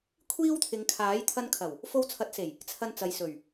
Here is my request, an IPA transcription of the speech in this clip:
kʷʰ iː˥ w t̪ʰ ɪ˨˧ ŋ kʰ aː˨˥ j t̪ʰ ɐ˧ n kʰ ɐ˨˩ w | f o˧ w t͡sʰ ɐ˨˥ t̚ s e˨˩ j | t͡sʰ ɐ˧ n t͡s ɐ˨ j s ɵ˨˩ ɥ

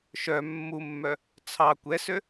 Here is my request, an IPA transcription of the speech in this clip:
ʃ œ mː u mː œ | t͡sʰ ɑ kʷ ɛ s ø

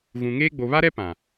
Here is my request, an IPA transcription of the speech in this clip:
ɣ ũ˨ ŋ eː˦ ɡ͡b o˨ β a˦ ɾ ɛ˦ p ã˨

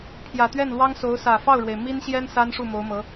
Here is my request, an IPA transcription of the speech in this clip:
pʰ j ä˨˩ t̪ ɥ ɛ˥˩ n l w ɑ˥ ŋ s o˧˥ ʊ̯ s ä˨˩ f ɑ˥˩ ʊ̯ ɻ w e˩ ɪ̯ m i˥ n ɕ j ɛ˥ n s a˥ n ʂ u˥˩ m o˧˥ ʊ̯ m ɤ˧˥

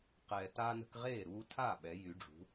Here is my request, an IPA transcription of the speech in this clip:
q ɛː˨ t aː˦ n ə̤˦ k ʁ eː˥˩ ɾ uː˦ tʰ a˥˩ ɓ ɛ˨˥ j y˨˥ ɖ͡ʐ ṳ˨˥

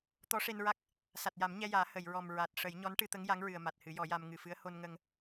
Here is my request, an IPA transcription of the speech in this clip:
t̪ ɔ˧˥ ʂ e˧ n ɹ a˦˥ k̚ | s a˨˩ t̚ j a˨˩˦ m ɲ ɛ˧ j aː˨˩˦ h ə˨˩˨ j ɹ ɔ˨˩ m ɹ a˨˩ t̚ ʂ ə˨˩˦ j ɲ ɔ˧˥ n ʈ ɨ˧ t̪ ə˧˥ ŋ j a˧˥ ŋ ɹ ɨ˨˩ ə̯ m a˨˩ t̚ h ɨ˨˩˦ j ɔ˨˩˦ j a˧ m ŋ ɨ˨˩ f ɨ˧˥ ə̯ h o˧ n ŋ ə˧ ŋ

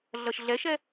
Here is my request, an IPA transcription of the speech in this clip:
ɮ ʌ ʃ ɮ ɛ ʃ ɛ

